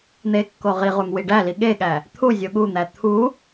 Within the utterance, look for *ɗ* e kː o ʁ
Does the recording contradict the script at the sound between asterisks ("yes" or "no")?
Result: yes